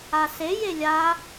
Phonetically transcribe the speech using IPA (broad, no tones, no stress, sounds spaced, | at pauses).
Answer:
a s e j e lʲ a